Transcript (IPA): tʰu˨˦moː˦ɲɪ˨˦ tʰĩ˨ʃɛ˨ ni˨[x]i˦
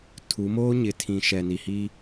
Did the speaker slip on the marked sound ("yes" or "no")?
yes